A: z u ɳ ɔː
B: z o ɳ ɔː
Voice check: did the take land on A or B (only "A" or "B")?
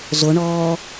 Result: B